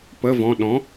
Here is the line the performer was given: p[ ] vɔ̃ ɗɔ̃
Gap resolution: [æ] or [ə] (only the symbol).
ə